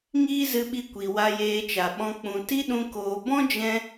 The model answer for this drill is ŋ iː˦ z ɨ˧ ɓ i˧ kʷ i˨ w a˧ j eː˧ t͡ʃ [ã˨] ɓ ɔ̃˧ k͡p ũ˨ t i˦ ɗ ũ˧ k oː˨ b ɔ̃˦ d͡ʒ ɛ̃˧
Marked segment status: incorrect: a˨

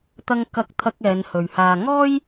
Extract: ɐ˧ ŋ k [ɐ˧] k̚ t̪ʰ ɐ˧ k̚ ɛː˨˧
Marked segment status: correct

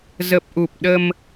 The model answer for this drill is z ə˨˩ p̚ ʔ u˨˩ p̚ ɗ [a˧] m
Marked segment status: incorrect: ə˧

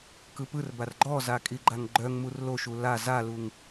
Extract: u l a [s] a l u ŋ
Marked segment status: incorrect: z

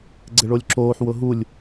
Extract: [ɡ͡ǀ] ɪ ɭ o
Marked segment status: correct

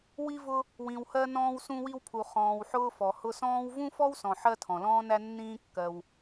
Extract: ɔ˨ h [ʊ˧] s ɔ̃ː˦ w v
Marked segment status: correct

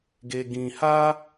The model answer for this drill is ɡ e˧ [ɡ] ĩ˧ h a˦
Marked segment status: correct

